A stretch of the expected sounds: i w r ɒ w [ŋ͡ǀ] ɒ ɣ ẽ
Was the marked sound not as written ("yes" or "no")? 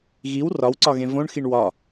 yes